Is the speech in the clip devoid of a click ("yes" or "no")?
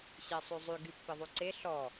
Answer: no